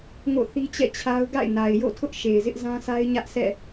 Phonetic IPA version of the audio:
ŋ o̰˦˨ θ i˦ t͡ɕ ɛ̰˦˨ t͡ɕʰ a˦ ʊ̯ ɡ a̰˦˨ ɪ̯ n a˨ ɪ̯ j o̰˦˨ tʰ ʊ˦ ʔ ʃ e˨ ɪ̯ z ɪ˦ ʔ z ã˦ sʰ a˦ ɪ̯ ɲ ä˦ ʔ sʰ ɛ̰˦˨

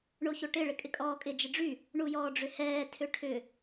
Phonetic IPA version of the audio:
ɳ o ç o ʈ ɪ ɭ ɪ kʼ ɪ kʼ ɔː kʼ ɪ d͡ʒ ɪ ɖ͡ʐ y | ɳ u j ɔː ɖ͡ʐ ʏ h ɛː tʰ ʏ ʈʰ ʏ

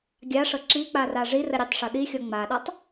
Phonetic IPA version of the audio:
ɡʲ a ʂ ɤ ǁ i k͡p a r a ʐ i r ə ɾʲ e tˤ ʂ ɤ ɗ i xʲ ɔ ŋ͡m a ɗ a tˤ

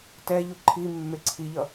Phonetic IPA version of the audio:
t ɛ ʎ u ǃʰ i mː e ǀʰ i ʎ ʌ

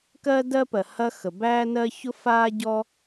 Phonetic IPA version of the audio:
k ɜː˥ d ɜː˥ p ɜ˩ h ɐ˥ x ə˩ b æː˥ n ɜ˥ ç ʊ˥ f aː˥ ɟ ɔ˥

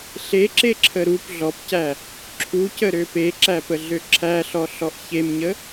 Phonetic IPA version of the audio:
ɬ e ǁ e ǁʰ ə ɾ u p ɮ ɔ p c æ | ǁʰ u c ə ɾ ø p e ǁ æ p ə ɮ ø ǁʰ æ ɬ ɔ ɬ ɔ ʔ ç e m ɲ ə

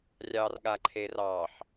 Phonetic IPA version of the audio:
rʲ ɑ r ɠ a ǃʰ e r ɑ ħ

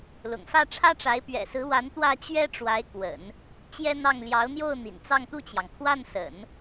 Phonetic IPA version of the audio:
l ʊ̰˨˩ ŋ f ä˥˩ ʈ͡ʂʰ ä˥ ʈ͡ʂ a˧˥ ɪ̯ p ɥ ɛ̰˨˩ s ɹ̩˧˥ w a˧˥ n t̪ w ä˥˩ t͡ɕ ɥ ɛ˥ ʈ͡ʂ w a˧˥ ɪ̯ k w ə̰˨˩˦ n | t͡ɕ j ɛ˥ n̪ ɑ˥˩ ŋ l j ɑ˧˥ ʊ̯ n̪ j o˥˩ ʊ̯ n̪ ḭ˨˩ n t͡s ɑ˥˧ ŋ t̪ u˥˩ t͡ɕ j ɑ˩ ŋ kʰ w a˥˩ n s ə̰˨˩˦ n

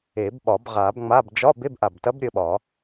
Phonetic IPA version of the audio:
e˨˩˦ b ɓ ɒ˨˩˦ b ʁ a˨˩˦ b ŋ͡m a˧˥˧ b d͡ʒ ɒ˧˥˧ b e˧˥˧ b ʔ a˨˩ b t ɐ˧˥ b ɾʲ ə˧ ɓ ɒ˨˩˦

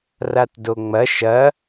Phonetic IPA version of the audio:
r a t d o ŋ͡m ɐ ʃ ɐ

